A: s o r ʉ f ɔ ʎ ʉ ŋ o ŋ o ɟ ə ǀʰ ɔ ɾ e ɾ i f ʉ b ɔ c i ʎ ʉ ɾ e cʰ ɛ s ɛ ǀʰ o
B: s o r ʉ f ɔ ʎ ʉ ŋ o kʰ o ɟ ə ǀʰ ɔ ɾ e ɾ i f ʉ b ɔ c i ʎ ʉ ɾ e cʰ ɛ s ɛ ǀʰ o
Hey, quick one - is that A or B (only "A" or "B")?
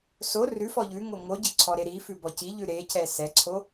A